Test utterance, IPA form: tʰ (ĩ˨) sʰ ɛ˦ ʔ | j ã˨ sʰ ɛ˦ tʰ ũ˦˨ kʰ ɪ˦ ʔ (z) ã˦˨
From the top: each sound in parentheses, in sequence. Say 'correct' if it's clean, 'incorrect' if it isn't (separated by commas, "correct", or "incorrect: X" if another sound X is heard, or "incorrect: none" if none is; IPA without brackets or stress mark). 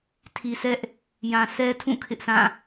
incorrect: i˨, incorrect: s